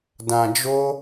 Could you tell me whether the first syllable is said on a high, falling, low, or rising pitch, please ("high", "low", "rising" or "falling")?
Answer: low